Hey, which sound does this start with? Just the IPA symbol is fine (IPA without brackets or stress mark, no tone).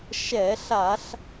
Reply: ʃ